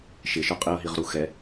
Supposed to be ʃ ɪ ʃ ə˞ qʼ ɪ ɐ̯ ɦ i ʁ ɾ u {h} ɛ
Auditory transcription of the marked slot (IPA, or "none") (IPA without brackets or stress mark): x